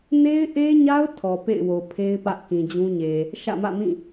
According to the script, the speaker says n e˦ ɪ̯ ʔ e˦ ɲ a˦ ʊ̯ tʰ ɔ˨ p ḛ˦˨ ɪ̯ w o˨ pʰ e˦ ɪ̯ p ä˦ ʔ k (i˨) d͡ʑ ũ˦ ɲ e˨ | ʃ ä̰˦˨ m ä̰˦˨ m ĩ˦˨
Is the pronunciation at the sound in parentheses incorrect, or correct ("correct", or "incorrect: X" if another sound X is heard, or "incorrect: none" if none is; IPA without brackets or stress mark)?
incorrect: ĩ˨